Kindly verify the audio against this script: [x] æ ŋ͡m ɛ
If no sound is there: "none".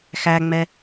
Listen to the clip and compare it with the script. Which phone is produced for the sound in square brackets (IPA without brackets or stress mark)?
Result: x